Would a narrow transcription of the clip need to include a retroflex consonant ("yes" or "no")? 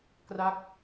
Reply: no